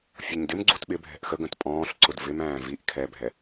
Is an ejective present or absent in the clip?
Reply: present